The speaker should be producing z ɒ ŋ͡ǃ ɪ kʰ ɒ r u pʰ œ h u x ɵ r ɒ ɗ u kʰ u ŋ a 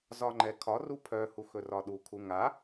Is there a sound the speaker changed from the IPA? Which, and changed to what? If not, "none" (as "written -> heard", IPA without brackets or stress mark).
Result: ɪ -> ɛ